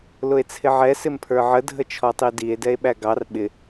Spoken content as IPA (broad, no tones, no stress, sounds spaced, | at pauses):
l ʊ e̯ t͡sʰ ɪ ʕ ɛ s ɪ m pʰ ə˞ ʕ ə dʱ ə t͡ʃʰ ɔ tˤ i d i e̯ d ɛ e̯ ɓ æ ɡ ɑ r ɓ ɪ